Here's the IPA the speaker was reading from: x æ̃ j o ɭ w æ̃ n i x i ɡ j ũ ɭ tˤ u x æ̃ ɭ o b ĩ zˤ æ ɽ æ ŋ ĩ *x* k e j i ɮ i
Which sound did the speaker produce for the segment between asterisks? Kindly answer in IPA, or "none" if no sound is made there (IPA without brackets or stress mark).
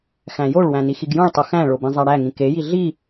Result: none